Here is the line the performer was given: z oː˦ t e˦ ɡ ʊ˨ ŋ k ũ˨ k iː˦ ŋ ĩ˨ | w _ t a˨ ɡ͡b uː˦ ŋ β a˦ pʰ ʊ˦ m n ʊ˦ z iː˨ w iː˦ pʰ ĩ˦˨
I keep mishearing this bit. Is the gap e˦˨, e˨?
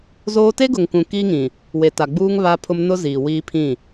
e˨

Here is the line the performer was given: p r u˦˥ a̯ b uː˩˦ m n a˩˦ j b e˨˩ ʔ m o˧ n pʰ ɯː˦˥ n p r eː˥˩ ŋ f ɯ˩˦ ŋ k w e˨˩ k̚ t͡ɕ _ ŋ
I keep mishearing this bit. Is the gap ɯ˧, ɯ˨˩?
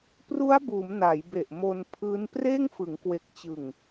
ɯ˨˩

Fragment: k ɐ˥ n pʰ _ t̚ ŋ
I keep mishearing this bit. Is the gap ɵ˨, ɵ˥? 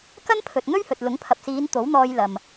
ɵ˨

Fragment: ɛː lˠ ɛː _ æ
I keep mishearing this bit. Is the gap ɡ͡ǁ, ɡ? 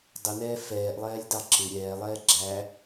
ɡ͡ǁ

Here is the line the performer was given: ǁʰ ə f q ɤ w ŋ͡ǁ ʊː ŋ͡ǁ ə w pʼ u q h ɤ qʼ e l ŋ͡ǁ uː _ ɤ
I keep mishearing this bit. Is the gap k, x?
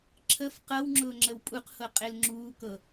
k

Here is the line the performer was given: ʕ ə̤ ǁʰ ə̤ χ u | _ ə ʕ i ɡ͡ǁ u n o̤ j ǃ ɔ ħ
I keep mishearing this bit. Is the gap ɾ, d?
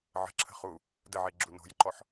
d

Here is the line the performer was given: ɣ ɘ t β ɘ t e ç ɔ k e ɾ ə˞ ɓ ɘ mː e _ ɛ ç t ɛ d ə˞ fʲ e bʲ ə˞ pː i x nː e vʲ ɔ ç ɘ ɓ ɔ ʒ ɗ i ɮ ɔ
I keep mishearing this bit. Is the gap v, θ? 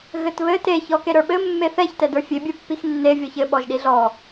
θ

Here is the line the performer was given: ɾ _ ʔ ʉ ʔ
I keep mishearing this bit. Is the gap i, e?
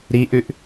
i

